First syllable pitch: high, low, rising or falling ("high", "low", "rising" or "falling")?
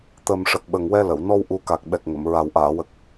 low